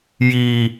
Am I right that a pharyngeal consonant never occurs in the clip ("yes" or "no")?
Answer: yes